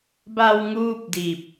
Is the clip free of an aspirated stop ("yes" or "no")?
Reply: yes